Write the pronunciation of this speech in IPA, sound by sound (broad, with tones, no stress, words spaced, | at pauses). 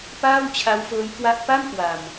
paː˥˩wt͡ɕʰa˦˥wfɤː˦˥jkwa˦˥ʔ pa˥˩mkwa˧m